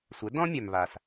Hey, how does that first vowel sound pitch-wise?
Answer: rising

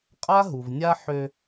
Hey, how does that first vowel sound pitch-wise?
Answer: high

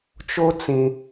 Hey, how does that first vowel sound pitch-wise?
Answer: high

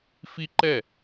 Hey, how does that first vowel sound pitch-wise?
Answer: high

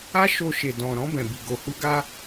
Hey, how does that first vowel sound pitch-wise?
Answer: high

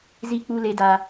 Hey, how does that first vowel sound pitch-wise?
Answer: low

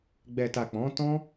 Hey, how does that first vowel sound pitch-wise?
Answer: low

